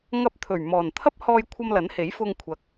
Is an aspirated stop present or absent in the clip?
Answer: present